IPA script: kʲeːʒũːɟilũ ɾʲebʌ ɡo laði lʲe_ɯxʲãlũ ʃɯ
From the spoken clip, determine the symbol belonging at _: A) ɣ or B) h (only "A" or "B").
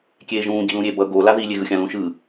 A